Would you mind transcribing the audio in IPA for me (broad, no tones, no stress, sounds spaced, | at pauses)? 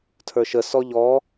tʰ ə˞ ʃ ə s ɔ ʎ ɔ